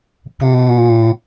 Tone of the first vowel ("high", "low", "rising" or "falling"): low